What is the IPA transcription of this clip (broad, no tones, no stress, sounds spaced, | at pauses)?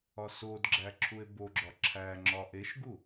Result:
ɒ s o d ɡ͡ǁ æ ǁʰ u e̯ b o ɡ͡ǁ ɒ ǁʰ æ ŋ͡ǁ ɒ ʔ e ʃ ɡ u